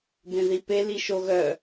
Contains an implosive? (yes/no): no